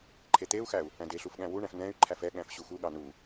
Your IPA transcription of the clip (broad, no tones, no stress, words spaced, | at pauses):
ǃʰet̪eu̯xæu̯ | æ̃deɬuf ɠæ̃wuɳæ̃f nɛ̃y̯ ǃʰæfɛɠæ̃f ɕuxuɠɑ nu